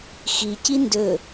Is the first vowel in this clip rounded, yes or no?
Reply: no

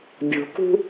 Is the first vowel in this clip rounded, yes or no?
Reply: yes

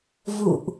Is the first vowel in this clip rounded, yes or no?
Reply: yes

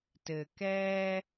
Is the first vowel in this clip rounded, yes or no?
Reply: no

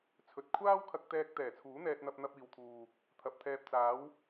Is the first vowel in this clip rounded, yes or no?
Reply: yes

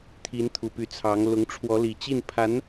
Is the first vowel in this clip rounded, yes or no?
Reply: no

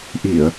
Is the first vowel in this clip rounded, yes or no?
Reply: no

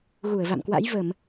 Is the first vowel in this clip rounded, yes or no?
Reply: yes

